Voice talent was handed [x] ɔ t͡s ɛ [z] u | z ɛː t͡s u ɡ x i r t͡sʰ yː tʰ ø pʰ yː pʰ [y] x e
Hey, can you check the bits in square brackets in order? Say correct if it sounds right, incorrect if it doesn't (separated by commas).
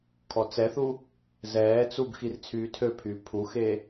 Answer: incorrect, incorrect, incorrect